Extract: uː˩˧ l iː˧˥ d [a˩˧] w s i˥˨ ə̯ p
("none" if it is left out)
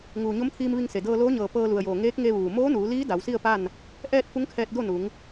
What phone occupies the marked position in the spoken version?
a˩˧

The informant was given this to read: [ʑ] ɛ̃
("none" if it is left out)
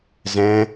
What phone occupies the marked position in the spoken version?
z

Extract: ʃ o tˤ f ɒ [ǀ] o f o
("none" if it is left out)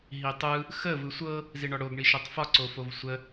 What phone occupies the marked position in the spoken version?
ǀ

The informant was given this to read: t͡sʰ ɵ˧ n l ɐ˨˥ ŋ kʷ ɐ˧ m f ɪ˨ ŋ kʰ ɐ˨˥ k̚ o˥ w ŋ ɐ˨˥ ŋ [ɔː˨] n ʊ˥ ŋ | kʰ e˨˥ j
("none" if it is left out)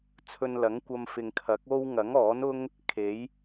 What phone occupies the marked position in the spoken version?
ɔː˨˥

